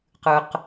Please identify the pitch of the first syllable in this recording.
high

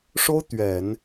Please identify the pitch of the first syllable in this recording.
high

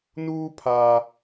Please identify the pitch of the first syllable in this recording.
high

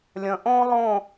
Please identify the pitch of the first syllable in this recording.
low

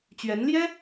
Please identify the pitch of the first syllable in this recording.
rising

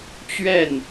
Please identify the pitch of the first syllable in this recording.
falling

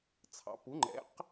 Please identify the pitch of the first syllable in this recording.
rising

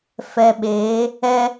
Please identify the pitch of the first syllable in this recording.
low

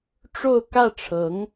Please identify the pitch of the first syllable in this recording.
falling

